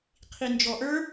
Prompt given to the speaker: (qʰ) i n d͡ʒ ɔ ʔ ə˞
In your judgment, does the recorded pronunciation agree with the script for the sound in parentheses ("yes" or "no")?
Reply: yes